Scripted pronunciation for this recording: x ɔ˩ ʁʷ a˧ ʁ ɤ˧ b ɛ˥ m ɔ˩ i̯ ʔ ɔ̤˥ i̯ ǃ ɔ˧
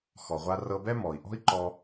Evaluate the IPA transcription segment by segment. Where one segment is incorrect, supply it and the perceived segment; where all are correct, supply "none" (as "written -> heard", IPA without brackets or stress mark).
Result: ʁ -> r